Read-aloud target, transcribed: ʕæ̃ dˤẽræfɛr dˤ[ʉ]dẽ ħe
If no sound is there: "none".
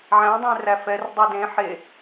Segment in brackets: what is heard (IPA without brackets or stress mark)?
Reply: ʉ